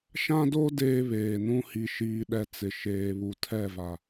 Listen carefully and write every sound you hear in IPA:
ʃ ã˦ d o˦ d eː˦ β eː˨ n ũ˦ h i˨ ʃ iː˨ ɗ ɛ˨ t͡s ɪ˨ ʃ eː˨ β u˨ tʰ ɛ˦˨ v a˨

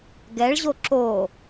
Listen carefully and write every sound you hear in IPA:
ɡ ɛ ɭ ʑ o ǁ o

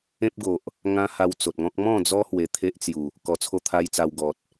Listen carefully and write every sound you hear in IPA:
ẽ˦ p̚ ɡ o˨ ʔ | ŋ ã˦ h a˧ w t͡s o˨ t̚ ŋ ɔ̃˦ k̚ m ɔ̃˥˧ d͡z ɔ˦ h w e˧ t̪ʰ e˦ ʔ t͡s j u˨˩ | k ɔ˧ t͡sʰ o˦ t̪ʰ a˦ j t͡s a˧ w ɡ ɔ˨ t̚

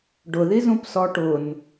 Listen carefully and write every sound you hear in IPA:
ɖ ʊ ð i z ũ p s ɔ ʈ ʊ n

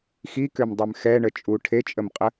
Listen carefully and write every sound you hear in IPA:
x i k ø m dˤ ø m x ɛ ɳ ə t͡ʃʼ u ʈʰ e t͡ʃʼ ə m qʼ ə

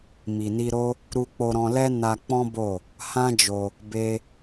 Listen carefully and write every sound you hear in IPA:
m i˨ n i˧ ɾ o˦ | ɾ u˧ k͡p o˧ ɾ ɔ̃˧ l ɛ˦ n a˧ k͡p ɔ̃˦ b o˦˨ | h ã˦ d͡ʒ o˧ | b e˦

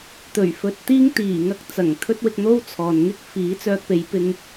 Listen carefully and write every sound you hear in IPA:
t̪ ɵ˨˩ ɥ f ɵ˧ t̚ t̪ iː˥ ŋ t̪ iː˨˩ ŋ ɐ˥ k̚ t͡s ɐ˨˩ ŋ t̪ʰ ɵ˥ t̚ w ɪ˧ k̚ n̪ o˥ w t͡sʰ ɔː˨ n ŋ ɪ˥ k̚ f iː˨˥ t͡s œː˧ k̚ p e˨˧ j p ɪ˧ ŋ

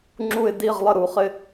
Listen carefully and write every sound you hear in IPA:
ŋ͡ǁ u˧˩ ɪ̯ d i˧˩ ʁ lˠ ə˧˩ ɾ u˩ χ ɪ˧˩

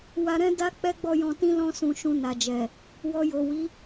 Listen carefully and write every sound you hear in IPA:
w a˧ ɾ ɛ̃˦ d a˦ k͡p ɛ˦ ɡ͡b ɔ˦˨ j ɔ̃˧ t ĩ˦ l ɔ̃˧ s ũ˨ ʃ ũ˧ n a˨ d͡ʒ ɛ˨ | w ɔ˧ j o˨ w i˨˦

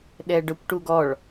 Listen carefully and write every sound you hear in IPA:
ɗ ɛ ɖ œ kʷ ʈ u ɡ ɔ ɭ

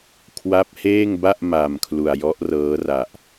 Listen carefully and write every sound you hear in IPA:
kʰ w a˦˥ p̚ h eː˥˩ ŋ b a˥˩ ʔ m a˨˩ m kʰ l u˨˩ a̯ j ɔ˦˥ ʔ r ɤː˦˥ r a˨˩ ʔ

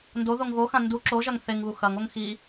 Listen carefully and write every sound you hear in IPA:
n d o ð o ŋ ɣ o x ã n d u ǁ o ʒ ɐ ŋ θ e ŋ β u x ɐ ŋ o ŋ x i

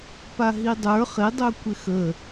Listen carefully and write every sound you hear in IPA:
p a ɦ i dˤ ə˞ χ ɪ dˤ œ kʷ ɪ x ə

